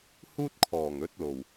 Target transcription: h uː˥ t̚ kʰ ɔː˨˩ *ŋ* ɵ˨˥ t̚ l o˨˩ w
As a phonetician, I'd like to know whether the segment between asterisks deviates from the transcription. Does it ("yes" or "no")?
no